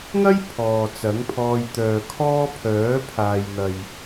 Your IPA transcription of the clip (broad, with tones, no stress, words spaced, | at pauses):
ŋɐ˥j pʰɔː˨t͡sɐ˨˥ŋpʰɔː˧j t̪œː˨kʰɔː˥ pʰœː˨˥pʰaː˨jn̪ɐ˨j